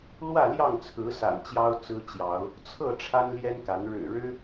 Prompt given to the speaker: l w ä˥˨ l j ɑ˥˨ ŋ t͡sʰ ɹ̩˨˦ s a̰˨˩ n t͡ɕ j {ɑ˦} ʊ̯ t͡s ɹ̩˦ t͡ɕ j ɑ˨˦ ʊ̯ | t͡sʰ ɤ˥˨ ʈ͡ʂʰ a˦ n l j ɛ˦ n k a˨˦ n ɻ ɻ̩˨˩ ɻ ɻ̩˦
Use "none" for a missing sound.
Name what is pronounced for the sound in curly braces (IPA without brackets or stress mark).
ɑ˦